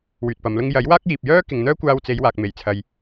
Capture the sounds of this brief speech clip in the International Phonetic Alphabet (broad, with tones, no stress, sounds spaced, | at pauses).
w yː˨ t̚ p ɐ˨˧ m l ʊ˥ ŋ j ɐ˨˥ j w aː˥ k̚ j iː˨ p̚ j œː˥ k ɪ˨ ŋ n̪ œː˥ kʷ aː˧ w t͡s e˨˧ j w aː˨ k̚ m e˨˩ j t͡sʰ ɐ˨ j